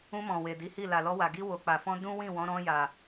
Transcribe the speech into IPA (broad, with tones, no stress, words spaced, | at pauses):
ũ˧mɔ̃˨ we˨di˨˦hi˦˨ la˨lɔ˧wa˨ ɡi˧wo˨ k͡pa˨fɔ̃˧ dũ˦ wĩ˦˨wɔ̃˨˦ ɾɔ̃˧ja˨